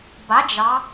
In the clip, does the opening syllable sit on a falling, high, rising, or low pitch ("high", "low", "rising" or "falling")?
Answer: rising